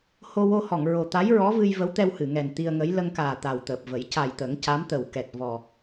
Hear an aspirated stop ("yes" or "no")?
no